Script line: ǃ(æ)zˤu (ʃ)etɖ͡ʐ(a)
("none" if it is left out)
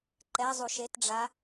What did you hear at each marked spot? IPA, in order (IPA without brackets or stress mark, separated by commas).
ɛ, ʃ, a